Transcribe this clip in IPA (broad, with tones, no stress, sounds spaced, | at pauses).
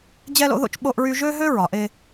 d͡ʑ ɛ˦ l o̰˦ ð o̰˦ t͡ʃ ɓ o˦ ʔ ɹ y˦ ʒ ø˦ ɦ ø˦ ɹ ɒ˨ ʔ e˦